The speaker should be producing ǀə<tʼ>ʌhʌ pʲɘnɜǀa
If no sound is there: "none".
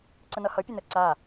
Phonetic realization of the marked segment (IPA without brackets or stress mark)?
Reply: n